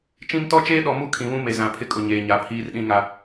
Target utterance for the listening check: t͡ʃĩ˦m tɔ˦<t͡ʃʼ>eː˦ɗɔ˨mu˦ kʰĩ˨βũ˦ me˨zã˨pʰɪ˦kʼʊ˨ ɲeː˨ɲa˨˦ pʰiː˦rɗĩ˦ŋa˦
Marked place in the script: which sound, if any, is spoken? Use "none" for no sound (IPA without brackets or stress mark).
t͡ʃ